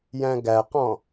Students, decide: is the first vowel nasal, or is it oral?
nasal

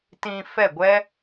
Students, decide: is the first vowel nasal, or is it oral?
nasal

